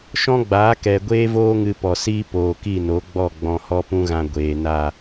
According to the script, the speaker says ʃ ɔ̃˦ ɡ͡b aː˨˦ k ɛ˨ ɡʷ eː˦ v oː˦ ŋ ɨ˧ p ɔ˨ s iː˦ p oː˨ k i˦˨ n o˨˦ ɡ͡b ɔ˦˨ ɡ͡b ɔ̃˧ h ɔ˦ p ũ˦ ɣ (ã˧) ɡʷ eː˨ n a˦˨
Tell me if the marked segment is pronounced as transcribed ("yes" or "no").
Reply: yes